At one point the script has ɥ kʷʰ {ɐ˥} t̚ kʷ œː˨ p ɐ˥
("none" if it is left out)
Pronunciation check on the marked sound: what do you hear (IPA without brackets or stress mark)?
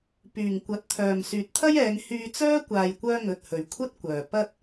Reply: ɐ˥